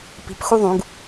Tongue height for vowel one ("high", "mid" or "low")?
high